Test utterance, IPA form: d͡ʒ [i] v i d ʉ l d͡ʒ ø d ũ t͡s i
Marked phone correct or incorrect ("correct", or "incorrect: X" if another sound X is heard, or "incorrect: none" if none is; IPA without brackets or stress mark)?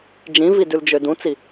incorrect: ĩ